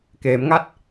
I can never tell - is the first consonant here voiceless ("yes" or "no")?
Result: yes